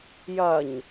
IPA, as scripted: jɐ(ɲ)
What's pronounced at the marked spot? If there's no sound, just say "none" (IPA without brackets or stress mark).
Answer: ɲ